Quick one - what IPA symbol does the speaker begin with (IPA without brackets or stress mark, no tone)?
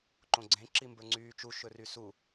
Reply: ǃ